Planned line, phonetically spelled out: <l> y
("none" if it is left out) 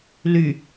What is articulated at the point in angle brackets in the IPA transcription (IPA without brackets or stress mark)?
l